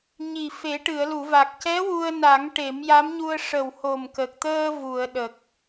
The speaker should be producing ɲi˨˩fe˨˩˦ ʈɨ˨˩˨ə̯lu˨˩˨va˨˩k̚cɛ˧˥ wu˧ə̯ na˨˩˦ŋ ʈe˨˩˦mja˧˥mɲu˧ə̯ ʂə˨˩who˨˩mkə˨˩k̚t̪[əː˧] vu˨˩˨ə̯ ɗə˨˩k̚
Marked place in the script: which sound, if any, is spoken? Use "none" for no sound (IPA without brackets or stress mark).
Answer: əː˧